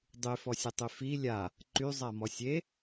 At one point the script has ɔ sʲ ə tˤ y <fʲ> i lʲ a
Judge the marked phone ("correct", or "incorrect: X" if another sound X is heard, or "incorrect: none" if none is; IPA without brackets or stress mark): incorrect: f